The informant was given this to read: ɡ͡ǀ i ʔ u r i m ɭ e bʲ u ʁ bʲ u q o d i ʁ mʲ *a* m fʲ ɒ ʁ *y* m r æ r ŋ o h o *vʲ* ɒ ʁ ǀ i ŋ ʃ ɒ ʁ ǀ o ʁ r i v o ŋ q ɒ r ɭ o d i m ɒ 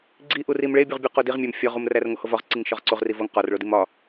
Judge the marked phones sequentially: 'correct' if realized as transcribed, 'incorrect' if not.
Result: incorrect: æ, incorrect: u, incorrect: v

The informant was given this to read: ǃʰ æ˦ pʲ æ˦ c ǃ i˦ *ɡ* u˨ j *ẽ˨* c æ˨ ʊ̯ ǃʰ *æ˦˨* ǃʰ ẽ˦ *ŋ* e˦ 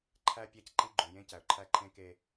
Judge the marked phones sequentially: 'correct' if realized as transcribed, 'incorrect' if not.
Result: incorrect: ɡ͡ǃ, incorrect: ẽ˦, incorrect: æ˦, incorrect: k

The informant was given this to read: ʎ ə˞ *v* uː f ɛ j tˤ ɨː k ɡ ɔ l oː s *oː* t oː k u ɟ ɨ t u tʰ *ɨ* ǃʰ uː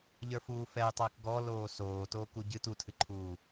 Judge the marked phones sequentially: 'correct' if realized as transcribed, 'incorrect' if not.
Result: incorrect: f, correct, correct

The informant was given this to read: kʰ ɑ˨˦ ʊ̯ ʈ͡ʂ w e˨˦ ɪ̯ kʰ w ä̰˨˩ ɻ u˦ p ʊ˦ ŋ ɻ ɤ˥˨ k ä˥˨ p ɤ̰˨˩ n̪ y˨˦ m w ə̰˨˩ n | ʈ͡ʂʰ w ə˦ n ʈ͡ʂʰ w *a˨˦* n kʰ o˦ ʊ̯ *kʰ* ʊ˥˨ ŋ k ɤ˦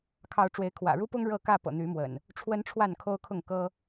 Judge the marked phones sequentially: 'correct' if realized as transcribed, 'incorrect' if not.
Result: incorrect: a˥˨, correct

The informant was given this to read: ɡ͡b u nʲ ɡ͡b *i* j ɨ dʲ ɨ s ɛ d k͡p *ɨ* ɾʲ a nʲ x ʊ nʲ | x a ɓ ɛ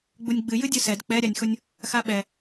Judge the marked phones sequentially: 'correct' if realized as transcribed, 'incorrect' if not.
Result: incorrect: ɨ, incorrect: ɛ

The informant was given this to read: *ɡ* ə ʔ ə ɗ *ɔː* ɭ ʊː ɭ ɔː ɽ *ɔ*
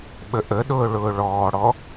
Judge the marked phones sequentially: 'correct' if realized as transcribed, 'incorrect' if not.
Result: incorrect: ɓ, incorrect: ʊː, correct

